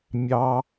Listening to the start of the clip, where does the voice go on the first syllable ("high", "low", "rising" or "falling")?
high